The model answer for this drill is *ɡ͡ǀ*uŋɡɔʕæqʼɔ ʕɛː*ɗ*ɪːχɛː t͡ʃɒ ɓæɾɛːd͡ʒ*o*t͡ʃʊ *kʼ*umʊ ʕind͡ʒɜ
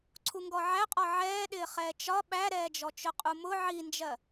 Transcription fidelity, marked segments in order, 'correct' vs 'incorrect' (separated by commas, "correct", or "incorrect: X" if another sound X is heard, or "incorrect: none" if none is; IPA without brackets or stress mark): incorrect: ǀʰ, correct, incorrect: ɔ, incorrect: qʼ